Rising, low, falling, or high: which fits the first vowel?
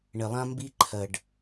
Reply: low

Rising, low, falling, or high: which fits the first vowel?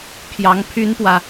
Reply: rising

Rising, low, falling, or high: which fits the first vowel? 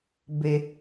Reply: low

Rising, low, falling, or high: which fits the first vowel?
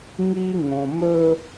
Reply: high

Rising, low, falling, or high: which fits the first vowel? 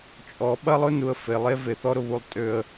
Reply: rising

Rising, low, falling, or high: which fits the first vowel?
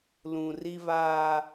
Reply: low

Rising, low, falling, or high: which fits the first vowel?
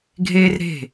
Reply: high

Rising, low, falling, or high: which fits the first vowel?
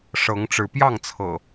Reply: rising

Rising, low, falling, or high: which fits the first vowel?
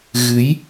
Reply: rising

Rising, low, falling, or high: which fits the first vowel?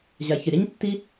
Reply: low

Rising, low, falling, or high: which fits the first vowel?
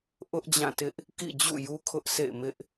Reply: high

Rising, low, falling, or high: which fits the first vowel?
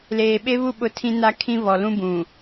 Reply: low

